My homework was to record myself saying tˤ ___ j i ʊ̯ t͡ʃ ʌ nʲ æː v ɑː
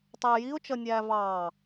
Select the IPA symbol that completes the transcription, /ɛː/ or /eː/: ɛː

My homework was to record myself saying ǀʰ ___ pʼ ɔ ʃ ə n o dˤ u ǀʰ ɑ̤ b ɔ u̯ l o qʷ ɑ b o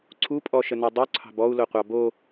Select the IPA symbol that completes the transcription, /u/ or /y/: u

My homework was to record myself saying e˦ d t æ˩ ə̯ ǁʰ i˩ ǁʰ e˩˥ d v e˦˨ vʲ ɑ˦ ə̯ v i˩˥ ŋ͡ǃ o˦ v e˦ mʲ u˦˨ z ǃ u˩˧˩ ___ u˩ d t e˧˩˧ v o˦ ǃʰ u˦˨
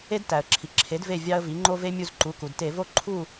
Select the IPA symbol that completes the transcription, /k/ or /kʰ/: k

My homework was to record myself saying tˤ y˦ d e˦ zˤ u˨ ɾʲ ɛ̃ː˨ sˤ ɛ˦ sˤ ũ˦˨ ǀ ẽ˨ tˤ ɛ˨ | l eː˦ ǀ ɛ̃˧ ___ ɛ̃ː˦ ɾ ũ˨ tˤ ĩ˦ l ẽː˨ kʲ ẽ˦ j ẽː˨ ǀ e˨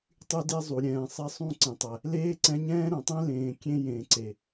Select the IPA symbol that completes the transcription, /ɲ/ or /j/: ɲ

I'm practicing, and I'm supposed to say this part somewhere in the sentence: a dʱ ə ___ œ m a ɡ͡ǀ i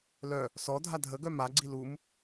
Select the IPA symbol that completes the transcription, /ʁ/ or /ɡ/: ɡ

